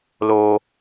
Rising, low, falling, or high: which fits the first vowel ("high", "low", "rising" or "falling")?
high